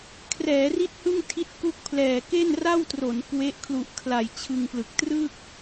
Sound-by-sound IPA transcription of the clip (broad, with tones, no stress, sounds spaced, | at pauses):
kʰ r ɛː˩˦ r i˥˩ t̚ h ɯ˥˩ ŋ tʰ i˦˥ t̚ k u˦˥ k̚ pʰ l ɛː˨˩ k e˥˩ n r a˥˩ w t r o˩˦ n k w e˦˥ ʔ kʰ l u˨˩ ʔ kʰ l a˨˩ j t͡ɕʰ ɯ˧ ŋ p l ɯ˨˩ k̚ t r ɯ˥˩ k̚